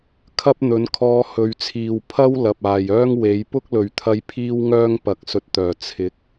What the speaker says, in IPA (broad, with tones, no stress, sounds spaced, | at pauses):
kʰ ɐ˥ p̚ n̪ ɵ˨˥ n kʰ ɔː˧ h ɵ˨˧ ɥ t͡sʰ iː˨ w pʰ ɐ˥ w l ɐ˨ p̚ aː˨ j œː˥ ŋ w e˨˥ j p ʊ˥ k̚ l ɵ˨ ɥ t̪ʰ ɐ˧ j pʰ iː˥ w ŋ œː˥ ŋ p ɐ˨˥ k̚ s ɵ˧ t̚ t̪ œː˨˩ t͡sʰ ɪ˨˥ k̚